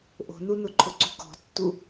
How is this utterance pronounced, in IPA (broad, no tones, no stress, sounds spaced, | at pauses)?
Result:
ʔ o̤ n u n ʊ ǃʰ ʊ ǀ ṳ k ɔ̤ tː u